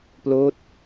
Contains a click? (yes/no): no